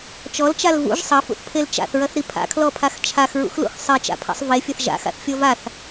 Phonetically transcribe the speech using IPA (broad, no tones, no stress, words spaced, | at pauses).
t͡ʃɔlt͡ʃal vṵʒ sˤɐfṵθpʰel t͡ʃa̰θɹɐθɾi pʰa̰kʰlɔpʰax t͡ʃʰaxɹṵxlṵx sˤet͡ʃa̰pʰa̰sˤ vefʲɐθ ʒa̰xa̰θfʲɔ vaθ